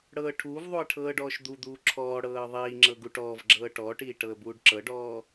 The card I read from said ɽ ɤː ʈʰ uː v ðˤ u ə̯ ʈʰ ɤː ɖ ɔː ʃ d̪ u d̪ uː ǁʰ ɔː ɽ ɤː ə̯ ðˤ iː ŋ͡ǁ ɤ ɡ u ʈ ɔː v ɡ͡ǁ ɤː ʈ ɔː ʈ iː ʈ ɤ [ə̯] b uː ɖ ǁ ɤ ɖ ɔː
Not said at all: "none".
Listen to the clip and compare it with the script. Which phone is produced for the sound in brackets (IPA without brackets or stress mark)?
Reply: ə̯